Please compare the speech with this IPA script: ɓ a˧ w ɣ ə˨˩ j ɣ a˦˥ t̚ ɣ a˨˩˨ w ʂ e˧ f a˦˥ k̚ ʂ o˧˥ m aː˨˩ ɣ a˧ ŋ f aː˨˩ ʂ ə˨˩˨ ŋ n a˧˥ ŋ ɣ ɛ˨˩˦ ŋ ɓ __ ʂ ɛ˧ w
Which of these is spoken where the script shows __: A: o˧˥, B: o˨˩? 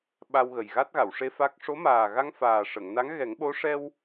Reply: A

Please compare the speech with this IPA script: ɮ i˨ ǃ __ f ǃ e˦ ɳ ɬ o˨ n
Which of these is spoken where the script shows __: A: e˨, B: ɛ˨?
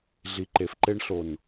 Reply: A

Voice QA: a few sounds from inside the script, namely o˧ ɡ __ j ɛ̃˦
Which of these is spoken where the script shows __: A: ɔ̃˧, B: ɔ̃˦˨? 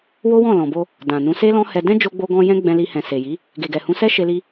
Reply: A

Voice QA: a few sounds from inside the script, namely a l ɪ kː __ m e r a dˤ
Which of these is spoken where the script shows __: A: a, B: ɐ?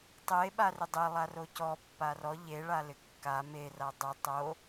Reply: A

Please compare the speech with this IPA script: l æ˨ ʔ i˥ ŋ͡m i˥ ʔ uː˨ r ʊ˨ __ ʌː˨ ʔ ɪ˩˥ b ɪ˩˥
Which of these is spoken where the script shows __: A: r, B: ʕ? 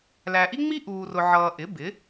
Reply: B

